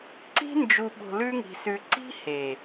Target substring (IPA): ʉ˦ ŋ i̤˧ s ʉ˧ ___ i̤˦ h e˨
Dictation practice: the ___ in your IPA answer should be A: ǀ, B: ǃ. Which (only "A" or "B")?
A